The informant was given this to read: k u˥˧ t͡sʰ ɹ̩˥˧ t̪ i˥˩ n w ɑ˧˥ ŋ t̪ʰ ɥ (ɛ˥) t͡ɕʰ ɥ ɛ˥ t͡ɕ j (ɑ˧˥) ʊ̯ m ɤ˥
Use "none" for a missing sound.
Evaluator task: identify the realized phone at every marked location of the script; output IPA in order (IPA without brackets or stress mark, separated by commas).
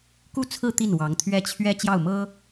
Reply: ɛ˥, ɑ˥˩